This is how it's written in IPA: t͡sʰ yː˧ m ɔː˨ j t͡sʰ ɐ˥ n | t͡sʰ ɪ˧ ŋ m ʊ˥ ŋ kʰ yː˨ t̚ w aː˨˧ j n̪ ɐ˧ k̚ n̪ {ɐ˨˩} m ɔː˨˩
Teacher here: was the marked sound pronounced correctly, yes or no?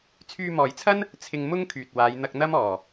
no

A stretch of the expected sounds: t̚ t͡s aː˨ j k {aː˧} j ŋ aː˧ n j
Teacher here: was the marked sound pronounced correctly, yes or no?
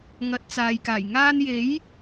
no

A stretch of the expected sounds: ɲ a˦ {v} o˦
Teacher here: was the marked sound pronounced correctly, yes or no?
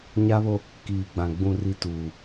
no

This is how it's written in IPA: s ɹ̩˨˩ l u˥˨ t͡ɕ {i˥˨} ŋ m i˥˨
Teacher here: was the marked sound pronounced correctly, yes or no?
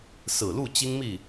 no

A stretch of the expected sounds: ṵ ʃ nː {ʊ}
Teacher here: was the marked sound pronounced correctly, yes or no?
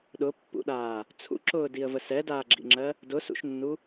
no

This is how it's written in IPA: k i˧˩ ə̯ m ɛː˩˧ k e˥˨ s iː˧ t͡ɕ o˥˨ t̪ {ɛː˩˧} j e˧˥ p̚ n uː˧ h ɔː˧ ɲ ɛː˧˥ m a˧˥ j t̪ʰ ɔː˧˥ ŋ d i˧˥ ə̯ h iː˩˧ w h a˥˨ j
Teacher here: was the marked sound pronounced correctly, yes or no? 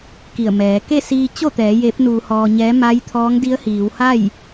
yes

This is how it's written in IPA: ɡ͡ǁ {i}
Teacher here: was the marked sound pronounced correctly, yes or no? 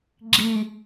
yes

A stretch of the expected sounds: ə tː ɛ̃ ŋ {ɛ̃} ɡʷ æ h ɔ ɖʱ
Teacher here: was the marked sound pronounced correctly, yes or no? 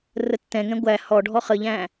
yes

